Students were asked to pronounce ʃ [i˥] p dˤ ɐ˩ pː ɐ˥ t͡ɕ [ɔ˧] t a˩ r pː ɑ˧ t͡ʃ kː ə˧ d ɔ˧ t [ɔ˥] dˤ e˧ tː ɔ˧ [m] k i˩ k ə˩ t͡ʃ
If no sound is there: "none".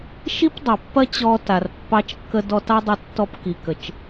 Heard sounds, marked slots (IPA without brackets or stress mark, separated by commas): i˥, ɔ˧, ɑ˥, p